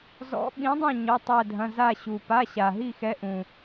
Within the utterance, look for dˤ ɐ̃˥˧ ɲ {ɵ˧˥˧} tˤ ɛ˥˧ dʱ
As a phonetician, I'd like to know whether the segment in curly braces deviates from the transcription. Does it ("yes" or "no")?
yes